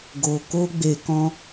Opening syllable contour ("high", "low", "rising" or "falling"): low